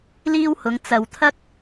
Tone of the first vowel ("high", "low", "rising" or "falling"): high